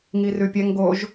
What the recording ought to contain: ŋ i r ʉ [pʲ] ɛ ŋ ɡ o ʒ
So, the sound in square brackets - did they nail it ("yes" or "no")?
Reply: yes